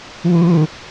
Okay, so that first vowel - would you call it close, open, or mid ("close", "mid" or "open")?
close